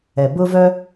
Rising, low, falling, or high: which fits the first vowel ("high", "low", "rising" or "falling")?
low